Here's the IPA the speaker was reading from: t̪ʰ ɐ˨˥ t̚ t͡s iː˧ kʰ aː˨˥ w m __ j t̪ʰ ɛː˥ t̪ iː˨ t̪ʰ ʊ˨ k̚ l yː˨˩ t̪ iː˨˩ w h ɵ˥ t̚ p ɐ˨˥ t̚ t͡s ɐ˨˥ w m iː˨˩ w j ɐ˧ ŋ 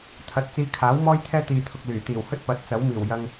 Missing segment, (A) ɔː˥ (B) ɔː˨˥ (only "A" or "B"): A